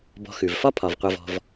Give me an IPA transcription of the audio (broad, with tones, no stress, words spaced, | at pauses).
bɔ̤˨xʉ˩vfɒ˦ pʰɒ˩vqʷʌ˨vɔ̤˨v